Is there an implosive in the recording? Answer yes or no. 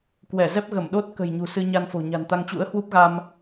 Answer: yes